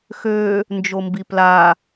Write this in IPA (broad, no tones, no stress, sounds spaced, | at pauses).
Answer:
x ø | n d͡ʒ o m b i p l a